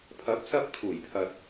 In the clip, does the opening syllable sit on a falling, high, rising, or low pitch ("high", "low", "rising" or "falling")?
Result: rising